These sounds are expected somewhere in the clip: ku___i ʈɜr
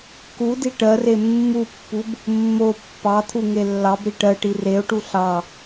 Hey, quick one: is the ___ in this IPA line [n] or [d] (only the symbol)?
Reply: d